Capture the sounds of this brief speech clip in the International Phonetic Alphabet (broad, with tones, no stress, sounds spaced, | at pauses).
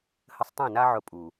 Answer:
h ə˧ sˤ tˤ ĩ˦˨ n a˦ ʕ ʊ˧ pʼ u˨